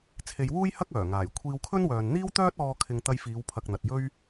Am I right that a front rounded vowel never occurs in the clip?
no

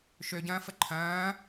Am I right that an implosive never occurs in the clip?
yes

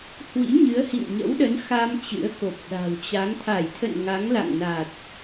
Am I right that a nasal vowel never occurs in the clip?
yes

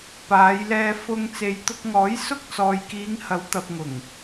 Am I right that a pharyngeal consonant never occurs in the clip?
yes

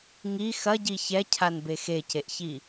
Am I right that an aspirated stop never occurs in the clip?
no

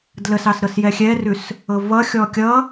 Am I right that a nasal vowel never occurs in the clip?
yes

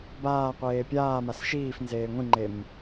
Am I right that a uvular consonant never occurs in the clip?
no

